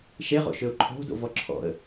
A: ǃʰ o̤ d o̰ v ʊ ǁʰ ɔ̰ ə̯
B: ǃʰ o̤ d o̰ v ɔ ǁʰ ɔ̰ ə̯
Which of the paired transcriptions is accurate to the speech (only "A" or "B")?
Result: B